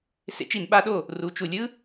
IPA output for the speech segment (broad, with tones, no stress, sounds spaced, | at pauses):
s ḛ˦˥ t͡ʃ i˨˩˦ n ɓ a˦˥ ɗ o˥˨ | r u˨˩˦ t͡ʃ u˨ lʲ ɯ˦˥